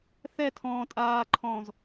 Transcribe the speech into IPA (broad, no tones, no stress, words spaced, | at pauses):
θɛtʰɔ̃ː tʼaːǃʰɔ̃ːz